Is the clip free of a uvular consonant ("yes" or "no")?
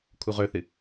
no